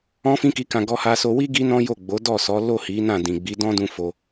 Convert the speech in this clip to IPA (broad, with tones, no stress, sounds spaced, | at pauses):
ɔ̃˦ f ĩ˦ k i˧ k ã˧ ɡ ɔ˧ h a˧ s o˧ w i˦ ɡ i˦ n ɔ̃˦ j o˦˨ ɡ͡b o˨˦ d ɔ˦˨ s ɔ˨˦ l o˦˨ h i˨˦ n ã˦˨ d ĩ˨ ɡ͡b i˨˦ d ɔ̃˦ d ũ˦ f o˧